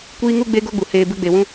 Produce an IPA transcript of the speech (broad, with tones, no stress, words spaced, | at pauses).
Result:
kʷiː˦ŋu˦ ɡ͡be˦ɡo˦ɡ͡bu˨ heː˧ bɨ˧ɡ͡be˨wũ˧